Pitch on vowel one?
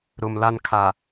low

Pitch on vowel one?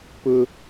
high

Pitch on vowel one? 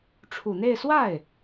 low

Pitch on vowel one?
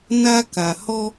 high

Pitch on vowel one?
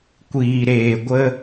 low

